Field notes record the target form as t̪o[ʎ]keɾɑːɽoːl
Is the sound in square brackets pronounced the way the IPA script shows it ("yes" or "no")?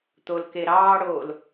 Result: no